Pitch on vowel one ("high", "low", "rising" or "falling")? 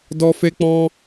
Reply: high